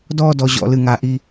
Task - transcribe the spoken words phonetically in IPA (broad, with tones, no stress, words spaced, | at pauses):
dɔː˥˧dɔ˩˧ʑɔ̰˩˧lɨ˧˩ ŋa˧ʔi˥˧